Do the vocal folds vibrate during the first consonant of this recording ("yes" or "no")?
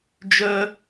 yes